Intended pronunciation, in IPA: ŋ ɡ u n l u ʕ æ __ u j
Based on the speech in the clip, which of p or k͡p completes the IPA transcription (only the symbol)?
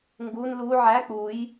k͡p